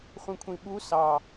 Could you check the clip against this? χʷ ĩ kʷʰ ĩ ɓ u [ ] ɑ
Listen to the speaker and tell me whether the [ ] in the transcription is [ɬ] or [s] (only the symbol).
s